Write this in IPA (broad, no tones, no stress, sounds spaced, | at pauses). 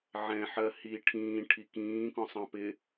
ʕ ɛ̃ ħ ɜ h i ʈʰ ĩː ʈʰ i k ĩː k ɔ̃ sˤ ɑ̃ p ɪ